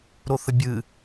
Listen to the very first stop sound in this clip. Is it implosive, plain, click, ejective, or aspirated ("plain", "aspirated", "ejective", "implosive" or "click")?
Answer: plain